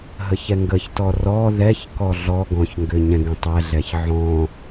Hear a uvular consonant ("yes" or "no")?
no